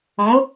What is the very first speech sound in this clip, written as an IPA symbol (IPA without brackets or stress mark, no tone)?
ɔ̃